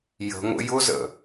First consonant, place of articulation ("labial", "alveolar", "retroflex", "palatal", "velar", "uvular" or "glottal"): palatal